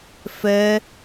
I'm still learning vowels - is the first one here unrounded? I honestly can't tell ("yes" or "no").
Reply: yes